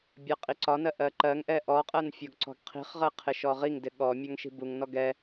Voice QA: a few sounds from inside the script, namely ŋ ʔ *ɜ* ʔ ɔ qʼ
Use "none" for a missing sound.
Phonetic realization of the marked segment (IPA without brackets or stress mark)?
ɛ